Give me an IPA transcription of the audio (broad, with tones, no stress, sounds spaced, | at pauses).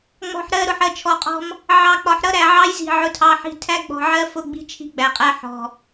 ŋ͡m ɔ̤˨ ħ ɾ ɜ˦˨ ɾ ʊ˨ ħ ɜ˨ t͡ʃʰ ɔ˨ qʼ ɔ̤˦ m | ʕ ɑ˨ k͡p ɒ˨ ħ ɾ ʌ˦ ɾ æ˨ ʕ ɑ˦ j z i̤˨ ʕ ʊ˦ tʰ ɑ˦ ħ i̤˦ tʰ æ˦ ɡ͡b ɔ̤˨ ʕ ɜ˦ f ʊ˦˨ ɡ͡b i̤˦ t͡ʃʰ i̤˦ ɡ͡b æ˨ qʼ æ˦ ħ ɔ̤˨